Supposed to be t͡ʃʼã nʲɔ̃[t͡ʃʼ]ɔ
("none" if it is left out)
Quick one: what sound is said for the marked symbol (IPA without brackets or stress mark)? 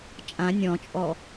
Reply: t͡ʃʼ